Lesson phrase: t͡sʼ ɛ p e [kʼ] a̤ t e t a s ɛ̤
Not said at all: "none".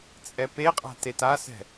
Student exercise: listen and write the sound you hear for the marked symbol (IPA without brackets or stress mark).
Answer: qʼ